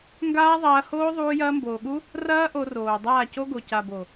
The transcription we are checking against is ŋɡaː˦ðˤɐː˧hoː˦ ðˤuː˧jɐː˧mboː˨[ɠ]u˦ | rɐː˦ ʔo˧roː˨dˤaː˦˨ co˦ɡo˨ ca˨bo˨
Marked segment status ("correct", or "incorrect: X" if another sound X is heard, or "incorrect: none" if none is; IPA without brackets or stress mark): correct